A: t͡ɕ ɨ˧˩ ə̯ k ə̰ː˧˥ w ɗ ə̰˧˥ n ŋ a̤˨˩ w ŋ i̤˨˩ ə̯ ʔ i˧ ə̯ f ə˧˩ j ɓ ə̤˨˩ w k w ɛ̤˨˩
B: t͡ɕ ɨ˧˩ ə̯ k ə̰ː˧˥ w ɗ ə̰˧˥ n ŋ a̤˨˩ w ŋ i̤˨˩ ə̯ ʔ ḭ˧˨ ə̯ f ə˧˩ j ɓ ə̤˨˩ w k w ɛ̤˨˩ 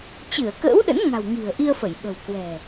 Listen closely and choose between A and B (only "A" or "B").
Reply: A